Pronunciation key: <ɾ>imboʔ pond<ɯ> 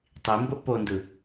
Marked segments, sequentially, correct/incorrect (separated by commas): incorrect, correct